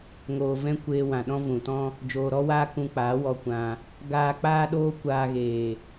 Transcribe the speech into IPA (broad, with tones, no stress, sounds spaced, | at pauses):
ŋ oː˨ v ɛ̃˦ kʷ eː˧ w ã˨ ɗ ɔ̃˦ v ũ˨ t ɔ̃˦ | d͡ʒ oː˨ ɾ ɔ˦ w aː˦ k ũ˧ k͡p aː˨˦ w ɔ˧ kʷ ã˧ | ɡ aː˧ k͡p aː˦ ɗ oː˦ kʷ aː˧ ɣ eː˨